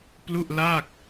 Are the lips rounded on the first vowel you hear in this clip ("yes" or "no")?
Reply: yes